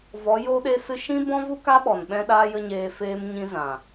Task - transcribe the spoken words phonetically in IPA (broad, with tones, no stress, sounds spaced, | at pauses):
v ɔ˨˦ j o˦ ɗ e˦ s ɨ˦ ʃ ĩ˦ b ɔ̃˦ v u˦ k a˦ ɓ ɔ˨ n ɓ ɛ̃˦ ɗ aː˦ j ə˦ ɲ eː˧ f eː˦ m ɲ ĩ˦ z ã˨